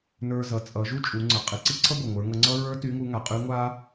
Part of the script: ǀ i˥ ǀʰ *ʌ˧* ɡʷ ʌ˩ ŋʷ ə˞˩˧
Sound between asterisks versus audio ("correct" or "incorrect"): incorrect